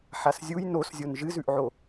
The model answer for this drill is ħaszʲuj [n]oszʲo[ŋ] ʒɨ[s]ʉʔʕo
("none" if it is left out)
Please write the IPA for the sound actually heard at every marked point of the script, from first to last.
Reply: n, n, z

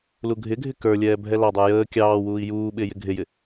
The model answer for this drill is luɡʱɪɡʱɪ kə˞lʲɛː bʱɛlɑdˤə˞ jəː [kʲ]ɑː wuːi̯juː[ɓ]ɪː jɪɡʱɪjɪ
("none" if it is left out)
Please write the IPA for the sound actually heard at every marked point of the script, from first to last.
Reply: kʲ, ɓ

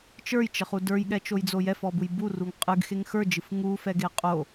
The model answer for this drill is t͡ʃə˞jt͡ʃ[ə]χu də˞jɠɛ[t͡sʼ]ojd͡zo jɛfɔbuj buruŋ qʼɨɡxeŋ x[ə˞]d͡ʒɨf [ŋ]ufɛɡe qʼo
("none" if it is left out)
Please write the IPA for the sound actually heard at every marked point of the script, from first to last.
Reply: ə, t͡ʃ, ə˞, ŋ

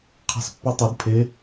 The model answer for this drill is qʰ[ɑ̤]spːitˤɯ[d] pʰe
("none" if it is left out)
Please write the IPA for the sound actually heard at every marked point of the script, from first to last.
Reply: ɑ̤, d

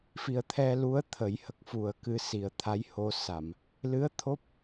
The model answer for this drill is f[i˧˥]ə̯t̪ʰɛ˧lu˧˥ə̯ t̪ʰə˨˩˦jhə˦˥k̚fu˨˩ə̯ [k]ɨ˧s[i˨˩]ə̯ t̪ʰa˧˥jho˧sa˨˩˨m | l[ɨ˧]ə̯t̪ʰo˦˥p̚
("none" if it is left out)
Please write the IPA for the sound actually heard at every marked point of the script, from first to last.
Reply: i˨˩, k, i˨˩, ɨ˧˥

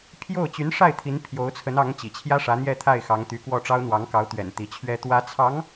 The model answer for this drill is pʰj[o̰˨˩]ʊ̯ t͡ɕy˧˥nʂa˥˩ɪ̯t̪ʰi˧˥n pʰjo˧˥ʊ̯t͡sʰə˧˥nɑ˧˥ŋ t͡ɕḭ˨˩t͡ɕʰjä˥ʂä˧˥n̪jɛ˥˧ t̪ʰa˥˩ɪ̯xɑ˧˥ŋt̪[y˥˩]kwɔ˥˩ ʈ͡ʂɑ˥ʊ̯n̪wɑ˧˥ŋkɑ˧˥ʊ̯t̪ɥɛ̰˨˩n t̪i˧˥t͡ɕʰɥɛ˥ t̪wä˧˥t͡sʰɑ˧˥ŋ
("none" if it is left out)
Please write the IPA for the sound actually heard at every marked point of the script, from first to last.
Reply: o˥˩, y˧˥

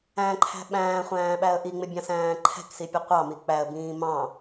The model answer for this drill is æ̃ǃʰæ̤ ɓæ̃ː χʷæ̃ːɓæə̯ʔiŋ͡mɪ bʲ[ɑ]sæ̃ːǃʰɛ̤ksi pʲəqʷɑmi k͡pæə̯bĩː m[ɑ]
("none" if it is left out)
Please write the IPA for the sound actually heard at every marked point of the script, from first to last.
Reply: ɑ̃, ɑ̃

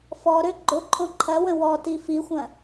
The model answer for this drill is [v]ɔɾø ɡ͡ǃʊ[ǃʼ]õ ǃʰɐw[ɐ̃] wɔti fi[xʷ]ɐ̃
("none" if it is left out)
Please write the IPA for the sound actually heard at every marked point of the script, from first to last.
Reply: f, ǃʼ, ə̃, xʷ

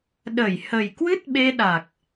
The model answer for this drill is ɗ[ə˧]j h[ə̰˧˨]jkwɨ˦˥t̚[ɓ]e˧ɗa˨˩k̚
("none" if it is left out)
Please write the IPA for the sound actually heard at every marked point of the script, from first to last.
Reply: ə˧˩, ə˨˩, ɓ

